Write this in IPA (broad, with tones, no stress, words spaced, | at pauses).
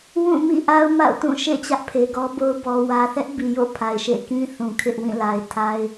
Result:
wũ˦˨mḭ˦˨ʔa˦ʊ̯ ma̰˦˨ʊ̯tũ˦˨ ʃḛ˦˨ t͡ɕä˦ʔpʰe˨ɡɔ˦bo˦ʊ̯ bɔ˨wä˨ θɛ˦ʔbi˨jo̰˦˨ pʰa˨ɪ̯ʃḛ˦˨kĩ˦ θũ˨kʰɪ˦ʔ wĩ˦˨la˨ɪ̯tʰa˦ɪ̯